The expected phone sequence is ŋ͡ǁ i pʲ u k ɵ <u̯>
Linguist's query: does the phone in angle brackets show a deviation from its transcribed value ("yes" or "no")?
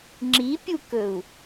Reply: no